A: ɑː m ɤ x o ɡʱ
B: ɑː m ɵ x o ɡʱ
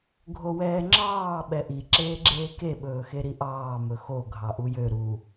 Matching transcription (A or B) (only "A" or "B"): B